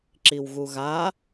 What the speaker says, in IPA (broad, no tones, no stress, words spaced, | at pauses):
ǁiwɣuɣa